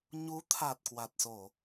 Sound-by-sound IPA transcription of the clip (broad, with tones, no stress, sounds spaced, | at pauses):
ɲ u˨˦ t̪ʰ a˨˩ t̚ k w a˨˩ t̚ s o˧˩˨